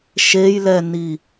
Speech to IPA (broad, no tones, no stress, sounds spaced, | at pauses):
ʃ e j l ɛ n i